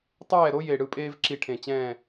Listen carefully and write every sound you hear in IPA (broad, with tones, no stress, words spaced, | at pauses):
tˤɛː˥˨ɾo˥ je˧˩ ɽɯ˥˨pʼeː˥vǁi˧˩ ʈʰẽ˧˩ t͡ɕɛ̃ː˥˨